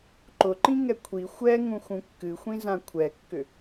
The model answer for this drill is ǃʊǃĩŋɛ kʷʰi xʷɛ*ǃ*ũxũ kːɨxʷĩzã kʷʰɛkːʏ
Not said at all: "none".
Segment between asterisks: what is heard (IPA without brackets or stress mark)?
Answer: ŋ